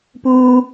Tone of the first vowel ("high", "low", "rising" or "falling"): high